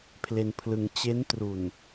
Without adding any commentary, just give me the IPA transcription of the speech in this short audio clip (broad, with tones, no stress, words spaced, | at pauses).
pʰle˧npʰlɯ˧ŋ t͡ɕe˦˥ntru˨˩n